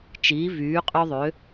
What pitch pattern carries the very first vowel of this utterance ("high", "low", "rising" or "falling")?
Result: rising